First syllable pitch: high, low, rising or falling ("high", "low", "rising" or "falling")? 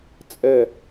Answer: falling